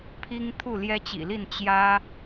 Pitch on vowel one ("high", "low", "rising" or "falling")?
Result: high